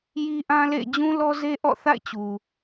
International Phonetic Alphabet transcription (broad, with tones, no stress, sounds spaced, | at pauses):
j i˦ ʔ ã˦ l ḛ˦˨ ɪ̯ d͡ʑ ũ˦ l ɔ˦ z e˦ ʔ ɔ̰˦˨ θ a̰˦˨ ɪ̯ t͡ɕ u˨